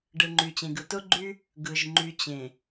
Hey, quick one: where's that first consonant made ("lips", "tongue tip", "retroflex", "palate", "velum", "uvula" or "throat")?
retroflex